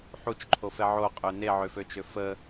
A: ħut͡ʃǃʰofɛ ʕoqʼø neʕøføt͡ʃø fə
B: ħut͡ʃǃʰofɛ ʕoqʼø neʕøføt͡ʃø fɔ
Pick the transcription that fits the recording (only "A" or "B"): A